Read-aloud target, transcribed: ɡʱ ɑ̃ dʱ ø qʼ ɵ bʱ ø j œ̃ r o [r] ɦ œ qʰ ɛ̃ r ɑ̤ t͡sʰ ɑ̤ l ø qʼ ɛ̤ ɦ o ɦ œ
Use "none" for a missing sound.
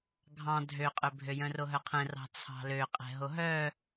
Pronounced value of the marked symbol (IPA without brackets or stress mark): none